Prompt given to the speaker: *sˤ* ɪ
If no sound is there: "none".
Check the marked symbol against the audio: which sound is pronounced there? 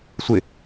sʷ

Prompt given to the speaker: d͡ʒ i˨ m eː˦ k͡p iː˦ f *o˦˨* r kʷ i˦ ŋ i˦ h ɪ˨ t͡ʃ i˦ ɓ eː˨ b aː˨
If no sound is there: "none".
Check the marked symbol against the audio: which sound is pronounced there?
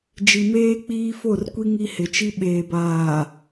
o˦˨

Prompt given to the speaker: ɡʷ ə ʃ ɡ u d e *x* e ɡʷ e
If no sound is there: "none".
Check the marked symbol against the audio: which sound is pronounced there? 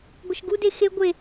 x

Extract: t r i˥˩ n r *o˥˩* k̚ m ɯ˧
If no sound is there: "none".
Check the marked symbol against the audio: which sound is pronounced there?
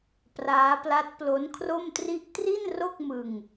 o˥˩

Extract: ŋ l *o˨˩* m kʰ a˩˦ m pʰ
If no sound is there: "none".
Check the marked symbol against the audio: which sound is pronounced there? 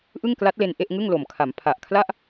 o˨˩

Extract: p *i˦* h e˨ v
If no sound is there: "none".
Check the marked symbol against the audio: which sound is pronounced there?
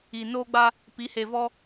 i˨˦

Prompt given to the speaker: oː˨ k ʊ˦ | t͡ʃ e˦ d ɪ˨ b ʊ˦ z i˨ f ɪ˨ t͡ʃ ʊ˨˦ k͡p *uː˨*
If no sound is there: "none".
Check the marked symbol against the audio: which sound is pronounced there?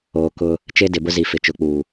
uː˨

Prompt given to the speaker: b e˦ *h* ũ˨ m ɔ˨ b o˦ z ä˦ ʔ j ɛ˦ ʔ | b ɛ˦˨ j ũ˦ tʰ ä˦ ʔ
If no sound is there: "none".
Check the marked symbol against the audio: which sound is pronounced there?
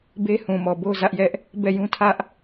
h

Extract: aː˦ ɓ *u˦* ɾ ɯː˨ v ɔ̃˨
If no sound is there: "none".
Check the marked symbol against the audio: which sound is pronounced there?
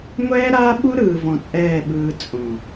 u˦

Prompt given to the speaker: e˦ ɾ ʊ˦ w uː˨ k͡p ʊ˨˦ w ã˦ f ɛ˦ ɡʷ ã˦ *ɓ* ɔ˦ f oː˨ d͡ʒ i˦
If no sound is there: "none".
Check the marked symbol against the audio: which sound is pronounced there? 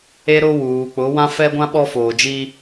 ɓ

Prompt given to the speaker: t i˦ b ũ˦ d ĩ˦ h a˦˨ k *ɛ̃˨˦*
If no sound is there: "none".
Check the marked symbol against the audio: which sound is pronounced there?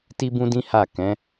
ɛ̃˨˦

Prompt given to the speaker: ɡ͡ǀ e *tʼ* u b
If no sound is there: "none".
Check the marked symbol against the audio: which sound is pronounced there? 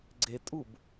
tʼ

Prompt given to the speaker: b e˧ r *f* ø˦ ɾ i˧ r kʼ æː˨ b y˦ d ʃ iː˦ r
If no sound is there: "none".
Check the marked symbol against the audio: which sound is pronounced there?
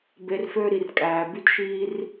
f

